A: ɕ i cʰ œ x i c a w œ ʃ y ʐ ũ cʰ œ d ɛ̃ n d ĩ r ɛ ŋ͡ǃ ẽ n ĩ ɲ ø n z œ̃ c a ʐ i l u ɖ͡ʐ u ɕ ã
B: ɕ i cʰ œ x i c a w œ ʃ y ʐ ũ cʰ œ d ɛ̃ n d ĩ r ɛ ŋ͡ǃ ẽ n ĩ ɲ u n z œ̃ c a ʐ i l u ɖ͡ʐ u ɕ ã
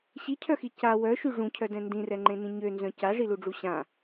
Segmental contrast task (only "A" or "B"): A